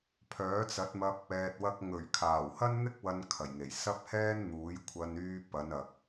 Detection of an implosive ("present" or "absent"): absent